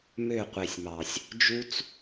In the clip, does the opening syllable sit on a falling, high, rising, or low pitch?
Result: falling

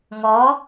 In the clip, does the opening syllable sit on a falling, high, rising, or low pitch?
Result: rising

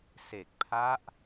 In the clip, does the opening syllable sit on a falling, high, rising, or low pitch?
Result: low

